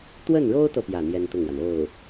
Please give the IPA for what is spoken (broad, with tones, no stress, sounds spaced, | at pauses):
t̪ w ə˥˩ n ɻ o˥ ʊ̯ t̪ ɤ˨ p j ä˥˩ n̪ j ɛ˥ n t̪ ʊ˥˩ ŋ w a˩ n o˥˩ ʊ̯